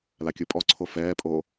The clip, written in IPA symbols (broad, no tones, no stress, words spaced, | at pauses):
lakʲɯpʼɔ ǀʰofɛːpʼo